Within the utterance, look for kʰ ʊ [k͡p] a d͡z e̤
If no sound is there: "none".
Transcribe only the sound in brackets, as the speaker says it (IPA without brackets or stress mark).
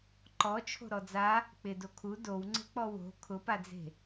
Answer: p